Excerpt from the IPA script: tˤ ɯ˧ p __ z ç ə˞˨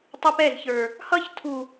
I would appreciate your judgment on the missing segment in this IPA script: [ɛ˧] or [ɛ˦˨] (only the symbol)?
ɛ˦˨